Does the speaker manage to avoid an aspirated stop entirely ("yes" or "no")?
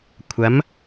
no